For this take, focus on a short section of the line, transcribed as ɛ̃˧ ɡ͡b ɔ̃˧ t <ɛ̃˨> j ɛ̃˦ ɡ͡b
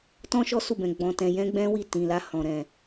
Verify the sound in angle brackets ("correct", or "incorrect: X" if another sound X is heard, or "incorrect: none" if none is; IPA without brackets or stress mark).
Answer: incorrect: ɛ̃˧